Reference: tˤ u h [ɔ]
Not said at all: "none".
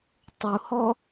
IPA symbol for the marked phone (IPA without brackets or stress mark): ɔ